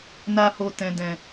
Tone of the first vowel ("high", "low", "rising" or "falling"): high